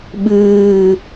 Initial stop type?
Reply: implosive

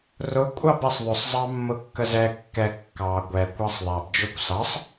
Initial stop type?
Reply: ejective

